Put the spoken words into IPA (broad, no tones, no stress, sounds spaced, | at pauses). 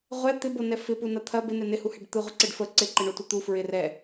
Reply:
ʁʷ ɛ t̪ ɪ b o n ɛ f ɪ p u n ɐ t̪ʰ ɐ b ɪ n ɛ n ɪ h u h ɛ ɖ t̪ ɯ ʁʷ ɪ ǀ ɪ ɖ f ə ǀ ɪ ǃ ɪ ɳ o tʷ ɐ t̪ u f ɹ ɪ r ɛ